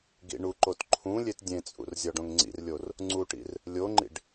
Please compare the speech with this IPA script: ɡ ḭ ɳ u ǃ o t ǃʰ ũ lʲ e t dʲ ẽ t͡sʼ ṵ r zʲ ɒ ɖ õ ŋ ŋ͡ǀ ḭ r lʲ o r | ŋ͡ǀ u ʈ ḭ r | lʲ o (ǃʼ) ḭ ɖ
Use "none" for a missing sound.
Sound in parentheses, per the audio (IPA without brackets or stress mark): ŋ͡ǃ